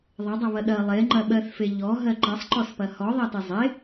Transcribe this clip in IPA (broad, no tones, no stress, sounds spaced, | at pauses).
ðˤ ɐ dˤ ɐ β ɐ ɗ ɐ lˠ e ŋ͡ǃ ɐ ɓ ɜ θ f e ʎ ɔ ɦ ɜ ǃ ɐ sˤ ǃ ɔ s p ɐ h ɔ ðˤ ɜ t e zˤ e